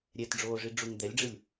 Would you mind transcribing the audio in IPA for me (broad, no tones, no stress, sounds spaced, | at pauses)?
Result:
ɾʲ ɛ t ɖ͡ʐ oː ʐ i ɖ͡ʐ u ŋ d̪ ɛ lʲ ɖ͡ʐ ɯ lʲ